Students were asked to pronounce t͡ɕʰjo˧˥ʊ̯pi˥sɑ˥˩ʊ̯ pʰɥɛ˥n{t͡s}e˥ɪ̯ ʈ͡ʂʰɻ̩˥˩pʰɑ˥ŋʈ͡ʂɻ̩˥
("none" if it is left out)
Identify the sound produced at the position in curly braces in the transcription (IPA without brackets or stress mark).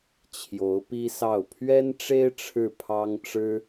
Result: ʈ͡ʂ